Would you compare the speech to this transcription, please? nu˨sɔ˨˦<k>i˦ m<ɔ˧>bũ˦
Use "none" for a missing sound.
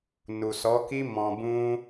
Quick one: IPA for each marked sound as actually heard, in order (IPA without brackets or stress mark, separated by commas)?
k, ɔ̃˧